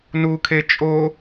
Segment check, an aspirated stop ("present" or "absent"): present